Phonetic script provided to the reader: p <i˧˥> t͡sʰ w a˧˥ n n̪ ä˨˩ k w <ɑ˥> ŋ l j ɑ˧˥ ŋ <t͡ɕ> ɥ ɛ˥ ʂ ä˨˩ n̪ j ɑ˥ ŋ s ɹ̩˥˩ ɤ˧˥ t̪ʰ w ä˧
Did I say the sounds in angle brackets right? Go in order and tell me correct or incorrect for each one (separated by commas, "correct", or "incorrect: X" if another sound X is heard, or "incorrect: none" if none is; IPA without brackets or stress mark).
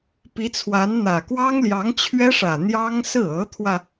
correct, correct, incorrect: t͡ɕʰ